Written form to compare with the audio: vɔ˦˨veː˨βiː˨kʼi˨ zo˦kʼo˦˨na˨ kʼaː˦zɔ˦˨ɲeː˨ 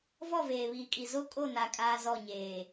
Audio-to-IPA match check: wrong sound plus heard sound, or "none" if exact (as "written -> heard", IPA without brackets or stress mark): none